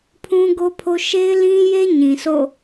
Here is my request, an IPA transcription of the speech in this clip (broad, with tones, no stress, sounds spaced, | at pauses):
pʰ ũ˦ ɡ o˦ pʰ o˦ ʃ e˦ ɪ̯ l ĩ˦ j e˦ ɲ ĩ˨ s o̰˦˨